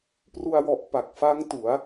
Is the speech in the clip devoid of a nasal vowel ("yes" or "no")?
yes